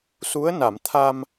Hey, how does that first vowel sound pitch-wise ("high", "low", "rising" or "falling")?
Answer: rising